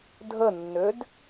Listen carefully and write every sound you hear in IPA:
dʱ ə nː ø d

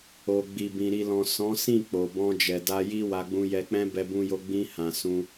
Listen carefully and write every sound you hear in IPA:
o˨ ɡ͡b i˨ b ĩ˨ ɾ i˨ l ɔ̃˨ s ɔ̃˨˦ s ĩ˦˨ k͡p o˨ b ɔ̃˧ d͡ʒ ɛ˨ d a˧ j i˦ w a˧ ɡ͡b ũ˧ j ɛ˧ k͡p ɛ̃˦ b ɛ˧ b ũ˧ j o˧ ɡ͡b ĩ˧ h ã˨ s ũ˧

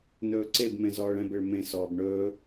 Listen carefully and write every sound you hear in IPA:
n ɵː ǀ e b m ẽ z ɔː ɭ ɛ̃ b e ɭ m ẽ s ɔː b ɳ ɵː

